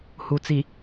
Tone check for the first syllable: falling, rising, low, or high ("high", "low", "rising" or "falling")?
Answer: low